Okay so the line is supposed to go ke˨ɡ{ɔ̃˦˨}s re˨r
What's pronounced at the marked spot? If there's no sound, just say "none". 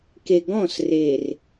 ɔ̃˦˨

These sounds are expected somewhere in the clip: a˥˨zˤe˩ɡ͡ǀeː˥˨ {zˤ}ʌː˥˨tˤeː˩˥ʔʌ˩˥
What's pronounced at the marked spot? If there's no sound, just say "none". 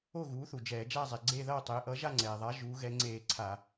ð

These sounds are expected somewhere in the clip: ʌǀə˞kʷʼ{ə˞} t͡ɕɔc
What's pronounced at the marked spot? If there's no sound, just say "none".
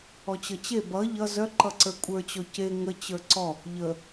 ə˞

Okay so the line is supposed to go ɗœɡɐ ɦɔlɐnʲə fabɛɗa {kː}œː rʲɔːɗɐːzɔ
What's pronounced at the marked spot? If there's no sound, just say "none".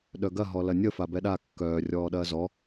kː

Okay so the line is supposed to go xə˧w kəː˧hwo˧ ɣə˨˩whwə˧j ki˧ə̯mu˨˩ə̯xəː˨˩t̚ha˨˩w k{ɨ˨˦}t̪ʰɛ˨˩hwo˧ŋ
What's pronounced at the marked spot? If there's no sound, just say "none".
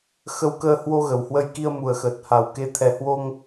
e˨˦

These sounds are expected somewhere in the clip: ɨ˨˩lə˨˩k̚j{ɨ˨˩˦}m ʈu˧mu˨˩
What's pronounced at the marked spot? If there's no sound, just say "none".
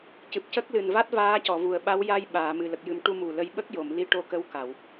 ɨ˨˩˦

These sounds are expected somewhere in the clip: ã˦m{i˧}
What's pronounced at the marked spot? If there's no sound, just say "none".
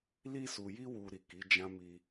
i˧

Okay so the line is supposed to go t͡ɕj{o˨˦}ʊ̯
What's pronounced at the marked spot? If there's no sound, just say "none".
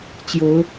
o˨˦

